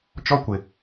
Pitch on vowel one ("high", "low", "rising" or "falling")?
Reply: high